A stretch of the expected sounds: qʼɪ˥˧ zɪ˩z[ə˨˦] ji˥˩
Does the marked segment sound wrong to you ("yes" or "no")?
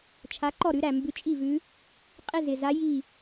yes